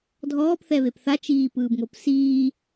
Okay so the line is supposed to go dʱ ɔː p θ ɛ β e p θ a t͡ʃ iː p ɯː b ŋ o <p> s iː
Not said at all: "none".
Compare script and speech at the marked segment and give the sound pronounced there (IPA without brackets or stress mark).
p